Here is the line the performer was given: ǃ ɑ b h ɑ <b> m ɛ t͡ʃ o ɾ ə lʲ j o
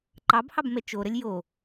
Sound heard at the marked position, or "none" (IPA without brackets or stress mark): b